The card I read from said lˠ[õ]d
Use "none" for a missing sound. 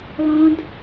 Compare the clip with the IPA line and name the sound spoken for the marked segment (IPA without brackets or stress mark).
õ